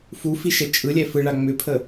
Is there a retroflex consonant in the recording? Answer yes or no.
yes